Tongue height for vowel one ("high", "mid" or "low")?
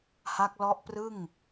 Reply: low